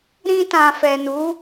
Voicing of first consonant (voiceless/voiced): voiced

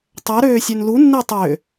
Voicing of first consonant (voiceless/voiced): voiceless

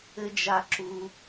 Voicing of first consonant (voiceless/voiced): voiced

